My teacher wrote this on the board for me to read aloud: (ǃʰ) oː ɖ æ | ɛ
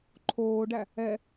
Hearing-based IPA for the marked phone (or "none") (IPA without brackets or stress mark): ǃʰ